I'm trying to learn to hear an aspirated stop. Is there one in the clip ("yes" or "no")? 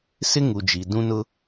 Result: no